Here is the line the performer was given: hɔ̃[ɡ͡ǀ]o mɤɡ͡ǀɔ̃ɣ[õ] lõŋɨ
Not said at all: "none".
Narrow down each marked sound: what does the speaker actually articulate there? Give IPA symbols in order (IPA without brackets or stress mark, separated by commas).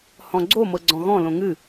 ɡ͡ǀ, ɔ̃